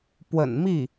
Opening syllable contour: low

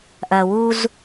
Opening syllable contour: low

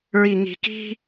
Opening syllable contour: low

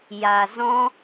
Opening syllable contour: low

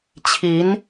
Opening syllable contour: rising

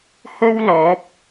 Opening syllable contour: high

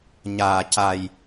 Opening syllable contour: low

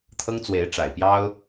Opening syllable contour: high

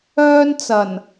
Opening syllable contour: high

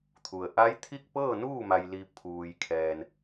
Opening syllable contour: low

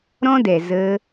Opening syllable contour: high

